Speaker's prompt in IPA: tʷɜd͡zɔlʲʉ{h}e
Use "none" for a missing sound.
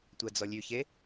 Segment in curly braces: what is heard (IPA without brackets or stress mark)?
ç